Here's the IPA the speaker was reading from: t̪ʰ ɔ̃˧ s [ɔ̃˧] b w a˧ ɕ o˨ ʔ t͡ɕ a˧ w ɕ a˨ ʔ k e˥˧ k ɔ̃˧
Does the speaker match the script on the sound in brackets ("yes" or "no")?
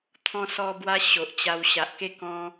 no